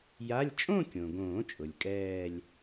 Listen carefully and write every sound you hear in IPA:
ja˧˥˧lʲ t͡ʃʼõ˥˧kʲõ˩ɡõː˨˩˦t͡ʃʼʊ˩lʲ kʼɛː˥˧lʲ

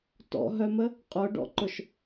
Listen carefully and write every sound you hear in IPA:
tɔ̰ɦœmə | qʼʊɖɔ̰ǃʊʃ

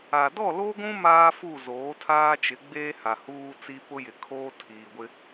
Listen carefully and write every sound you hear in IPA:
a˨ dɔ˦˨lo˦ɡʷũ˦ maː˦fu˦˨ zoː˨˦tʰaː˦ t͡ʃɪ˨˦ɡ͡beː˦ ha˨huː˦t͡si˦ pʊ˦jɪ˨kʰoː˦ tʰiː˨ɡʷɪ˦

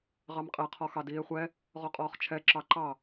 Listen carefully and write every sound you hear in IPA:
ʁɑmqʼɛ qʰɔxɑdiːe̯χʷɛ | ʁɔqʼɔːχt͡ʃʰɛ ǁɑǃɑ

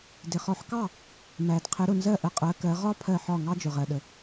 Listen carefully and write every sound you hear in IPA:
dɪ˩χɔ˩˥ħkɑ˥˩ | mæ˩d qʰɪ˩˥ɾʊ˩nzɜ˥˩ʔə˩˥ qʼɜ˩˥kɜ˩˥ ʁɒ˥ pʰɜ˥˩ħɒ˥˩ ŋɑ˥d͡ʒʊ˩ʁɜ˩ɗə˩

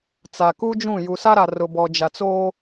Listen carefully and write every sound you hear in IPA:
t͡sa˨ku˦d͡ʒũ˦˨ ju˨sa˦ɾa˨ rʊ˨bɔ˨d͡ʒa˨t͡soː˦

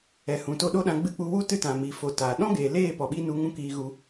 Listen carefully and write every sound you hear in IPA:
ɛ˨hũ˨ to˧ɗo˦ɗã˧ ɡ͡bɨ˧k͡pu˧wu˦ tɨ˦tã˨miː˨ fo˧taː˨ ɗɔ̃˦ɡeː˨leː˦˨ pɔ˨ɓi˦nu˧ŋũ˦ kiː˧ɣu˧

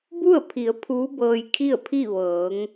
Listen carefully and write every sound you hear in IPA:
bu˥˨ə̯pʰi˩˧ə̯ pʰuː˧˥bɤː˧jkʰi˥˨ə̯pʰi˥˨ ʋɤː˩˧ŋ

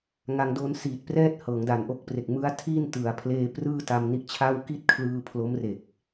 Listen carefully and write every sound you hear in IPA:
ŋa˧ŋdo˧nsiː˨˩t̚prɛː˥˩t̚ hɤː˩˦ŋda˨˩nʔo˦˥k̚pre˨˩k̚ mɯ˦˥a̯tʰi˥˩n tɯ˩˦a̯pʰleː˧ prɯː˥˩ta˧mni˦˥ʔt͡ɕʰa˥˩w ki˥˩t̚kʰlɯː˧ pʰlo˦˥mre˨˩k̚

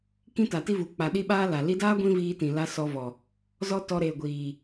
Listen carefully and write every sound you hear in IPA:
kĩ˦ta˨ti˦vu˨ k͡pa˨ɗi˧ ɓaː˦la˨ li˧daː˦ ɡʷĩ˦viː˧tĩ˨la˧ sɔ˧vɔ˨ | zɔ˦tɔ˧ ɾeː˨ɡʷiː˨

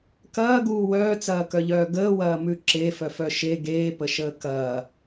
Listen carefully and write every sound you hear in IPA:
kɐːɡuː wœːt͡sɐːkœʎœː ɡəːwɐːmʉ ǁefœfœ ʃe ɡeːpəʃəː kɐː

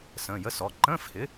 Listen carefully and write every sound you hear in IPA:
sə̃ː˩˧˩jə˧˥˧sɔ˩˧˩ ǃə̃ː˧˥˧fhɪ˩˥

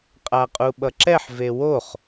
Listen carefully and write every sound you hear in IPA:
qʼaqʼuɓʌǁɛħ vewoχ

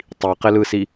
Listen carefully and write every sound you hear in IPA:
tˤiqɪlɯsi

